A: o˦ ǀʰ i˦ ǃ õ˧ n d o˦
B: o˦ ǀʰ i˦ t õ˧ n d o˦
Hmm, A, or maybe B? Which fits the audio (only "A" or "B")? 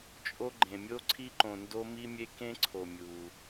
A